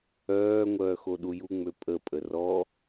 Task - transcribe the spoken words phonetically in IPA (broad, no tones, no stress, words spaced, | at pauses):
œː ŋʷœːxoɗuju ŋ͡møpʼə pʼərɔ